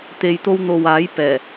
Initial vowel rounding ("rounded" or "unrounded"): unrounded